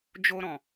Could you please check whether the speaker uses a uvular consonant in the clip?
no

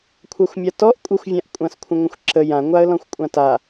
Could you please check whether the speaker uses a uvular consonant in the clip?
no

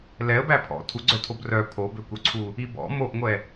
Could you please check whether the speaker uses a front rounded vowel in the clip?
yes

